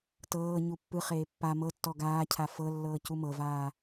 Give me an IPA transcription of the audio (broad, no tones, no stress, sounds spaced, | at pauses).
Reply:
t ɤː ɲ u pː ɯ χ eː pː a m ɤ tː ɔ ɡ aː cʰ a f ɤ lː ɤː c u m ɤ v aː